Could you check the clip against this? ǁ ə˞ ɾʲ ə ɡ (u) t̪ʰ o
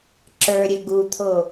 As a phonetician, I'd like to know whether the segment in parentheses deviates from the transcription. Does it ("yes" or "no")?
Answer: no